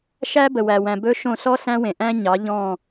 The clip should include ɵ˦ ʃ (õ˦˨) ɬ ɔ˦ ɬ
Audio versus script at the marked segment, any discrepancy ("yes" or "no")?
no